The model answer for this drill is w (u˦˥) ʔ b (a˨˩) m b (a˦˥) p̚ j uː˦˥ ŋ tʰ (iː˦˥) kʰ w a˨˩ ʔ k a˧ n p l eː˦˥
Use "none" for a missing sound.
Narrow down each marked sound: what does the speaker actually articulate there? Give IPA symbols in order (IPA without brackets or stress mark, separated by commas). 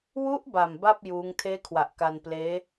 u˦˥, a˨˩, a˥˩, eː˦˥